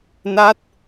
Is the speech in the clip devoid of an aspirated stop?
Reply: yes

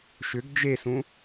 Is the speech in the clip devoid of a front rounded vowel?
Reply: no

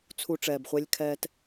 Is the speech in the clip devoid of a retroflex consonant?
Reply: no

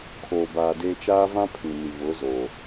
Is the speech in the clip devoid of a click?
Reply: yes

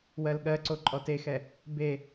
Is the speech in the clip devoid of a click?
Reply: no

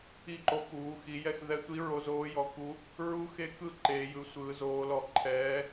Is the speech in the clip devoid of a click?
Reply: no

